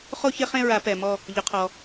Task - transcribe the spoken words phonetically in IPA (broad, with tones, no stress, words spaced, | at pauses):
χo˥˧çɪ˥˧χẽ˥˧ɹa˨˩˦ pɛ˨mɔ˥˧ | ʎʊ˨˦qʰɔ˨